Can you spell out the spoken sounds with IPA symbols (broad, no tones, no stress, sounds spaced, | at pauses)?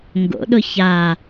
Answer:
ŋ ɡ o̰ ɗ ʊ ç a